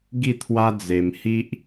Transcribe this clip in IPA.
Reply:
ɡ i˥˧ t̪ʰ w a˦ d͡z e˧ m h i˦ ʔ

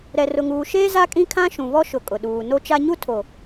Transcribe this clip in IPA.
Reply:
ɾ ɛ˨ r ʊ˨ ŋ uː˨ ʃ eː˦ z a˦ kʼ ĩ˦ kʰ ã˦ ʃ ũ˨ β ɔ˦ ʃ ʊ˨ kʼ ʊ˨ ɗ uː˨ n o˦ t͡ʃ a˦ ɲ u˦ tʰ o˨

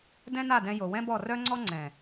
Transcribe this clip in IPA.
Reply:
d ɛ̃˦ n a˦˨ d ɛ̃˧ j o˨ w ɛ̃˦ b ɔ˦˨ r œ˦ ŋ͡ǀ ɔ˦ ŋ͡ǀ ɛ̃˨

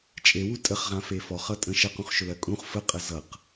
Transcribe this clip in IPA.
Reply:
t͡ʃʼ e w u tʼ ə χ ʁ ã f e f ɔ χ ʌ tʼ ə̃ ʃ ə q ũ χ ʃ ɵ l ɜ kʼ ũ χ f ə qʼ ə z ʌ q

